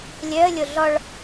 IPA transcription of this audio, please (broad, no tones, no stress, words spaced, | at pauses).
lʲœə̯ lʲoɮɔɭ